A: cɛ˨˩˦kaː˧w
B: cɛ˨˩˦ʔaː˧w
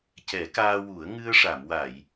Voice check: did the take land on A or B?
A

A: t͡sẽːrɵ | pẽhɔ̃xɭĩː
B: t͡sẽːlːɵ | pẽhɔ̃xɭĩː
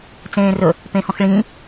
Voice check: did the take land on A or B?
A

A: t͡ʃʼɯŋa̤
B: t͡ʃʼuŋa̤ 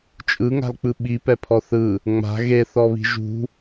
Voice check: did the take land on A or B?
A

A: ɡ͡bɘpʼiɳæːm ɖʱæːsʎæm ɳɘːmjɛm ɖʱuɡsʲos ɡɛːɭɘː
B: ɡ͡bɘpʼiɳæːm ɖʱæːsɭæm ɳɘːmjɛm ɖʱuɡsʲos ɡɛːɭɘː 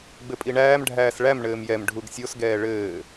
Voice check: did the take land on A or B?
B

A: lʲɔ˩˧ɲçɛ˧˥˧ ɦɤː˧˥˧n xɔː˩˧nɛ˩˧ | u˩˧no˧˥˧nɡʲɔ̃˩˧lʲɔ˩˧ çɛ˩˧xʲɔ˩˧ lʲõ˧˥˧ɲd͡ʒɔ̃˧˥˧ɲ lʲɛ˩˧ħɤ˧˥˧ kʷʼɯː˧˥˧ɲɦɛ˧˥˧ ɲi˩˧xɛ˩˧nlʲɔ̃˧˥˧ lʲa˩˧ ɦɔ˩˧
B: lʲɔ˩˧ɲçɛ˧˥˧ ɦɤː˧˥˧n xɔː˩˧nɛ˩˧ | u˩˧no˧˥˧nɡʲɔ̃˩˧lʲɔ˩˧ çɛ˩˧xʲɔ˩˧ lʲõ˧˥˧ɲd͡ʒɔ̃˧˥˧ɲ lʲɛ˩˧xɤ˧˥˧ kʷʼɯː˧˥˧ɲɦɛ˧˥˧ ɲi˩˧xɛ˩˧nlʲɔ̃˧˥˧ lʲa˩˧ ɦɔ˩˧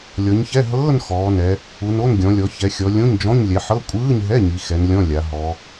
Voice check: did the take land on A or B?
A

